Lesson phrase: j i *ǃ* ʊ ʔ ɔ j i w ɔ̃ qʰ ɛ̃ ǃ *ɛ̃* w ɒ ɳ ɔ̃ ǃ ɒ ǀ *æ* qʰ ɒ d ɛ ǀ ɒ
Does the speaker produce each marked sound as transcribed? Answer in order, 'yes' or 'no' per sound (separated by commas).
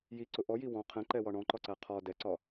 no, no, yes